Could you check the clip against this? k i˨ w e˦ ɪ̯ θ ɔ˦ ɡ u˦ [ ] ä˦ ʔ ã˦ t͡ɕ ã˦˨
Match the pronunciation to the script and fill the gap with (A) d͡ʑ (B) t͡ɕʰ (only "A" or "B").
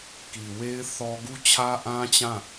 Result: B